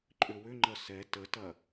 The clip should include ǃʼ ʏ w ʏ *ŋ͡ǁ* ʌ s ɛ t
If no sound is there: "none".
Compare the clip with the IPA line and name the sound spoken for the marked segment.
ŋ͡ǃ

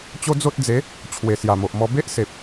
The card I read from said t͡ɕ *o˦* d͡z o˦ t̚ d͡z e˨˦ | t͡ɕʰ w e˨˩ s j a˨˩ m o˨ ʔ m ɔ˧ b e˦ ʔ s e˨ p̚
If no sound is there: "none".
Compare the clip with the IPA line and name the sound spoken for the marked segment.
o˦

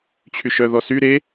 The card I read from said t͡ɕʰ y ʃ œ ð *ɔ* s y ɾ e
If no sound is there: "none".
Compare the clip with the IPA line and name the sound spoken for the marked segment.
ɔ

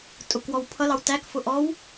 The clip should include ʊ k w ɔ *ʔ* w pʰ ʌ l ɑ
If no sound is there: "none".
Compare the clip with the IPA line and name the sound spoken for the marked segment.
none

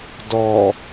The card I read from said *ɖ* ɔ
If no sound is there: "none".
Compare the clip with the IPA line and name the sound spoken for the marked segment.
d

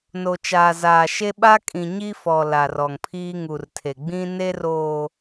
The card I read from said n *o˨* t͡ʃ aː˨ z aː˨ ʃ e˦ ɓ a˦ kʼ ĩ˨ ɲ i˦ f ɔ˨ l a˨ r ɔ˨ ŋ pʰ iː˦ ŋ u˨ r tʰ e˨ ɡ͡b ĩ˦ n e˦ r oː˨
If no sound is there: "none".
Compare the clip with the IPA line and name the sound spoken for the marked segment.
o˨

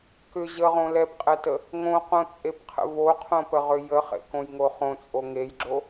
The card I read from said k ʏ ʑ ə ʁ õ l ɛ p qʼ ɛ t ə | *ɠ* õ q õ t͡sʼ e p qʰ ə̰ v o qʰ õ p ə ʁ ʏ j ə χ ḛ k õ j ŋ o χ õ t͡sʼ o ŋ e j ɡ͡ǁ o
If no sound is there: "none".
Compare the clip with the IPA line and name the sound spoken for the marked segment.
ŋ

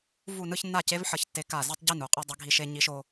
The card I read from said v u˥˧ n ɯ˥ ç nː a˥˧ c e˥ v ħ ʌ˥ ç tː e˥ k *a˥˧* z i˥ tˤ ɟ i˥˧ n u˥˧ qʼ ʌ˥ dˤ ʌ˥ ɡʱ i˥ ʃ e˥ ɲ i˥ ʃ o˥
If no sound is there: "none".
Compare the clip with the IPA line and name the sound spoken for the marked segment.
a˥˧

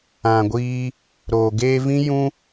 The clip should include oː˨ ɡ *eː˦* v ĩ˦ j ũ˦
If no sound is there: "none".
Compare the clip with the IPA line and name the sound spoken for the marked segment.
eː˧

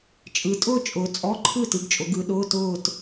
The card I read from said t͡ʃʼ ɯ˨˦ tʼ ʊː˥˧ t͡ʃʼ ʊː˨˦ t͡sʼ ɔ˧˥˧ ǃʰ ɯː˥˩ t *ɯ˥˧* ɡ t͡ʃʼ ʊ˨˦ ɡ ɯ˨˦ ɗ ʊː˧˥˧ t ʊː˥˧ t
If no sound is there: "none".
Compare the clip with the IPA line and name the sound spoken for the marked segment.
ɯ˨˦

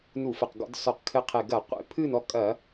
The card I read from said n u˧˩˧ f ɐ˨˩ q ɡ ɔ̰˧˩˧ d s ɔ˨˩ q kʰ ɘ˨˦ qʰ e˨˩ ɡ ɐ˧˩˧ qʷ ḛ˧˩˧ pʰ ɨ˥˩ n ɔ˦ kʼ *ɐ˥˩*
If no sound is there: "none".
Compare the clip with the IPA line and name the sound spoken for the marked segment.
ɐ˧˩˧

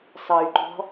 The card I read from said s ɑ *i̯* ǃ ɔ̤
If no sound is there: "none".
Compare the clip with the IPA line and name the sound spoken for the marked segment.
y̯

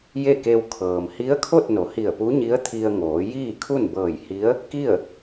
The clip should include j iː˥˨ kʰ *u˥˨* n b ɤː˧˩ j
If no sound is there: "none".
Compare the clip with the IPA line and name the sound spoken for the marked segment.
u˥˨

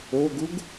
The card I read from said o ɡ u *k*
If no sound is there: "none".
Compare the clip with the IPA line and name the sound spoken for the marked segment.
ɡ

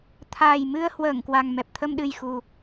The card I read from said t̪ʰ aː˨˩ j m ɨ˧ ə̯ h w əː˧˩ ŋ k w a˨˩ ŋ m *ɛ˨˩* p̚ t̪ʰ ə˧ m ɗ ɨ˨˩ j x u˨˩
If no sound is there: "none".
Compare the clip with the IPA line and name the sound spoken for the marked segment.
ɛ˨˩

